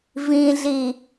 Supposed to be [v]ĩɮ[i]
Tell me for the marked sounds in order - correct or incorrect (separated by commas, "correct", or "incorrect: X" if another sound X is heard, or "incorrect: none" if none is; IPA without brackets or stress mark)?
correct, correct